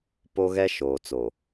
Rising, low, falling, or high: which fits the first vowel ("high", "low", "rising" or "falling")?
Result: high